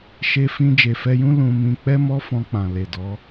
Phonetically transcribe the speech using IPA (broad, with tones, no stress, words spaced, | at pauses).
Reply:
ʃe˧fĩ˧ d͡ʒe˨fɛ˧jũ˦ lũ˧mĩ˧ k͡pɛ˦mɔ˦fɔ̃˧k͡pã˨ le˨dɔ˨˦